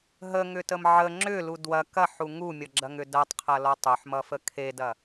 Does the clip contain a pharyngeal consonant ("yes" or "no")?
yes